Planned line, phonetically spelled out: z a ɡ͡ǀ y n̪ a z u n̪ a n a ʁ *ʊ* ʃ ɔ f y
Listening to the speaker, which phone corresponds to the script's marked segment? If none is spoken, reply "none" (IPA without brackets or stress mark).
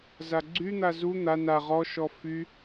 ɔ